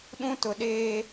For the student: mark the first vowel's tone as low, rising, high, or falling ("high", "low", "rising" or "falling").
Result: high